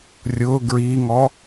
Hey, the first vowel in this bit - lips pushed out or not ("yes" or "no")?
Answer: yes